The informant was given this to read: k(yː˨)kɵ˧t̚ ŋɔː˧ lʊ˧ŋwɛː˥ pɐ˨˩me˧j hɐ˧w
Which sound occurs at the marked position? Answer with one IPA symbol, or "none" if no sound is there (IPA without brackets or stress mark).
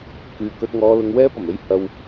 yː˨